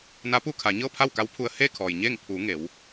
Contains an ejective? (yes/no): no